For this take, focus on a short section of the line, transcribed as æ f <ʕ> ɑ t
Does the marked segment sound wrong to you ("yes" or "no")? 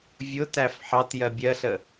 yes